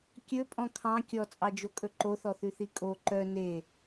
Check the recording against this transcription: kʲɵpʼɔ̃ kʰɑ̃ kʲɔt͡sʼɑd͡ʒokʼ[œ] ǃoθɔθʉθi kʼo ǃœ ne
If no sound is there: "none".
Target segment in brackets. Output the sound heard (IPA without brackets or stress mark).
ɵ